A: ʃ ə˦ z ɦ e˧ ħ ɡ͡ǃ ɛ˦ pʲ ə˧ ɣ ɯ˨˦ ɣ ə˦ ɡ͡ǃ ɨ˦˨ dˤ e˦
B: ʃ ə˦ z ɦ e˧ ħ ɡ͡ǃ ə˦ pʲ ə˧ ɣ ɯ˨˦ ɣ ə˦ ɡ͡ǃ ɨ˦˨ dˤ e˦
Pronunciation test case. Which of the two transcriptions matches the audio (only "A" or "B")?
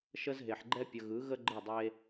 A